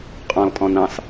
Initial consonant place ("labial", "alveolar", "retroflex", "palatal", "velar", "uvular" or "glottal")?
uvular